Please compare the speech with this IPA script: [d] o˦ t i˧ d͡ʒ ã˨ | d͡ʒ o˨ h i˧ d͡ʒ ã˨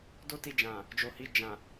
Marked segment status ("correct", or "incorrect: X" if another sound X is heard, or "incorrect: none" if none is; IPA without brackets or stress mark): correct